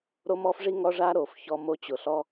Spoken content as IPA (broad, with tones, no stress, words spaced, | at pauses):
ɾo˦mɔ˦fʐi˦ŋɔ˦ ʐa˦ɾo˨fçɔ˦mo˦ t͡ɕʊ˨ɬɔ˦